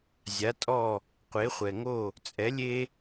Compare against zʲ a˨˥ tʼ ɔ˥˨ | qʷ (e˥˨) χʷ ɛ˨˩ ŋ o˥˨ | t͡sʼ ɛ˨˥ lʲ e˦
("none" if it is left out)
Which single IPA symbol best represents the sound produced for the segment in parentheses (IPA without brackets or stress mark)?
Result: e˨˥